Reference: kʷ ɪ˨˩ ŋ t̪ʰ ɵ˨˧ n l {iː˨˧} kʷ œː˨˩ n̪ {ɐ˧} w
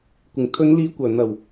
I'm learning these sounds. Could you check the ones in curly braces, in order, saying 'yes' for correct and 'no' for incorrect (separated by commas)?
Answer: yes, no